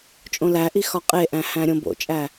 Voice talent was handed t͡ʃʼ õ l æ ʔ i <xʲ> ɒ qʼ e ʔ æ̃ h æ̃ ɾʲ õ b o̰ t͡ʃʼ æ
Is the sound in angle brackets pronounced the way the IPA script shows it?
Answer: no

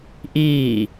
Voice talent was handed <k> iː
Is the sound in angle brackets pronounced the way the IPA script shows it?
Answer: no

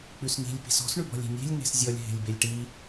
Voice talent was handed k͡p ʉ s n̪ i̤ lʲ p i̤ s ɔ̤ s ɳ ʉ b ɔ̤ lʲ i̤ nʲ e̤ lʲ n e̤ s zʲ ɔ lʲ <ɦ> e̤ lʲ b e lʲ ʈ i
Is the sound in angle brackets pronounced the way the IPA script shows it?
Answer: yes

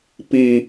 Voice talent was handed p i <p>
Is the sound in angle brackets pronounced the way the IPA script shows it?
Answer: no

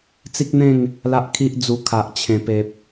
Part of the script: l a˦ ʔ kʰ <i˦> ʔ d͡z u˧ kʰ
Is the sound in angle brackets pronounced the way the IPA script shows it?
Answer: yes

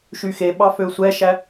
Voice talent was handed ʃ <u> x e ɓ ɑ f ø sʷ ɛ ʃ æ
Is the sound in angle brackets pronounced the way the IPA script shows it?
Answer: no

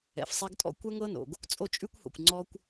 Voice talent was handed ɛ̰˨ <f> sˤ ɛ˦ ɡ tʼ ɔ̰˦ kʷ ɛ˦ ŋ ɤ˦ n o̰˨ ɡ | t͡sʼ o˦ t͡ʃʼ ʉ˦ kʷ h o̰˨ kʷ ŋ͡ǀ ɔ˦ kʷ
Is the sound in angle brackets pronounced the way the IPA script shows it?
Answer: yes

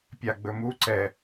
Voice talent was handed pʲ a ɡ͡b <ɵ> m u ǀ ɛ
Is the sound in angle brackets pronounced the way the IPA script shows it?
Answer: yes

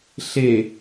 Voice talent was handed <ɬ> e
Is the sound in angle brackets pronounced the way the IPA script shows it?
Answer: yes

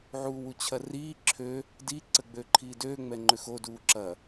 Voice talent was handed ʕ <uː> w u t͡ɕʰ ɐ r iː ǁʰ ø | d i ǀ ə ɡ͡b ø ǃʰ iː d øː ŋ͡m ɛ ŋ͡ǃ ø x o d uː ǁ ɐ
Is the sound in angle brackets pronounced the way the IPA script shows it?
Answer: yes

